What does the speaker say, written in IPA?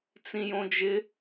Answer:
t͡s ĩ j õ d͡ʒ ɪ

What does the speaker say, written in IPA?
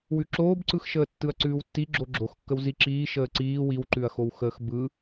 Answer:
w ʉ ǁ oː b ǀ ɯ x ʃ əː tː ɯ ɐ̯ ǀ ʉː w tː i ɡ͡ǁ o ɡ͡ǁ o x kː ə w z i ǁ iː ʃ əː ǀ iː w i w ǃ ʉ ɐ̯ x o w x əː x b ɯ

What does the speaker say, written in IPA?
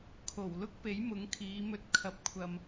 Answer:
kʰ o˨˩ w l ʊ˥ k̚ p e˨˥ j m ʊ˨˥ ŋ kʰ iː˨˧ m ɵ˧ t̚ kʰ ɐ˧ p̚ kʷʰ ɐ˧ m

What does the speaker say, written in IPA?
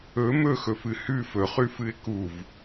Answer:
ɵ m ɵ x ɵ f ɨ h ʉ f ɵ χ ʉ f ɨ ɪ̯ k u v

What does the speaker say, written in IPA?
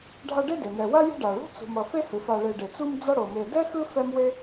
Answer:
ɖʱ a˦ ɖ e˥ d e˩ n ɛ˨ w a˥ j ṳ˦ ɖ a˩ ɭ ṳ˥ t͡s ṳ˨ m ʌ˨ f e˦ h ɯ˩ f a˨ ɭ e˨ ɖ e˩ t͡s u˦ m d͡z ʌ˦ ɽ o˩ m e˨ d ɛ˥ x ɯ˦ f ɛ˥ m w e˥

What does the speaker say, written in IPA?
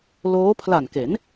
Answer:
l oː˦˥ pʰ l a˨˩ n k e˩˦ n

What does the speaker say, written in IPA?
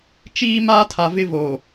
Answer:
t͡ʃ iː˦ m aː˦ tʰ a˨ v ɪ˦ v o˨

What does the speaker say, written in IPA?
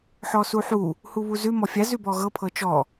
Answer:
ħ ɔ s u ħ u | h u β u z ʉ m ɔ fʲ a z ʉ b ɔ ɣ ɤ pʰ ɤ t͡ʃ ɔ

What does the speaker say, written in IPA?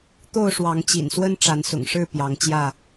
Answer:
t̪ o˥˨ ʊ̯ ʂ w ɑ˨˦ ŋ t͡ɕ ḭ˨˩ n s w ə˦ n ʈ͡ʂ a˨˦ n s ʊ̰˨˩ ŋ ʂ ɻ̩˥˨ p j ɑ˨˦ ŋ t͡ɕ j ä˥˨

